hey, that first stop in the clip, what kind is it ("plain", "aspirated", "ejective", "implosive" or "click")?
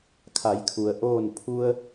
aspirated